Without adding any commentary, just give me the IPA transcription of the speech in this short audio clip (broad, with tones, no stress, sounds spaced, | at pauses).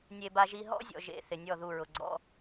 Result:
nʲ e˨ b a˦ ʒ i˦ ɦ ɔ̰˦ zʲ ɔ̰˨ ʒ ḛ˨ θ ɪ˨ nʲ ɔ˦˨ ð u˦˨ ɹ ʊ˨ ɡ͡ǀ ɔ̰˦